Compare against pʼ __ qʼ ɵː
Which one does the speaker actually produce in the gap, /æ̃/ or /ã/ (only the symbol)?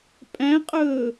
æ̃